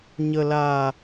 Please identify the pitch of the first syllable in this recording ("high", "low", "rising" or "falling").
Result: low